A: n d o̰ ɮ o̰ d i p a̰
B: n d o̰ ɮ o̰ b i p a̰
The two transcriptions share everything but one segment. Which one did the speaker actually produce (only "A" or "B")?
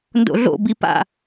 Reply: B